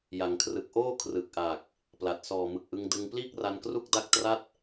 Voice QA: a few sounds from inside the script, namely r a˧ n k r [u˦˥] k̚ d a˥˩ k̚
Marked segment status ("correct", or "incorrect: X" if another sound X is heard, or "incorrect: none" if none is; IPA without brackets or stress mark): incorrect: u˥˩